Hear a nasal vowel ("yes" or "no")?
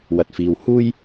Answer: no